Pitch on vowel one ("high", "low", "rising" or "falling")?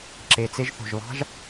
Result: low